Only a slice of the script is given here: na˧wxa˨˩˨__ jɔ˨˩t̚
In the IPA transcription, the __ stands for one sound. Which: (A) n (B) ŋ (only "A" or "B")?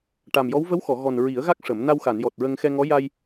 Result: A